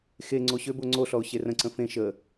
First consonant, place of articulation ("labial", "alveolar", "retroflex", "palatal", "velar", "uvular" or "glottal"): velar